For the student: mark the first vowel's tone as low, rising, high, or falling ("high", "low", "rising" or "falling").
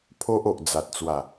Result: high